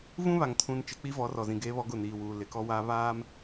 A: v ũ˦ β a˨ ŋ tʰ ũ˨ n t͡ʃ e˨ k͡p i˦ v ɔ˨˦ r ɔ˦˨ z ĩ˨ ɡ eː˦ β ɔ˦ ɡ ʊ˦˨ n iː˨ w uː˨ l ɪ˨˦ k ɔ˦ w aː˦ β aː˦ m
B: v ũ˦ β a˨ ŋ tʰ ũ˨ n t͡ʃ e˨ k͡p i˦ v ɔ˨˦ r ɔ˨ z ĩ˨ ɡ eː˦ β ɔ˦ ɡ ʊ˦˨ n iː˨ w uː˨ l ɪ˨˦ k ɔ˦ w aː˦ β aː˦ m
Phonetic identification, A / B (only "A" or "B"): B